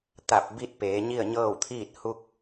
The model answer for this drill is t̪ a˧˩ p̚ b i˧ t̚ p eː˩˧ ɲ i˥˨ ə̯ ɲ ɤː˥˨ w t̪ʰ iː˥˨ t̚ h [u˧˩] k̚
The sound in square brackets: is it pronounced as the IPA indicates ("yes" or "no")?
no